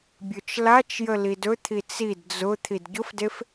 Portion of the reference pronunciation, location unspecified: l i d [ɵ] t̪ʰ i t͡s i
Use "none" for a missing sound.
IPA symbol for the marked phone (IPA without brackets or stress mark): ɵ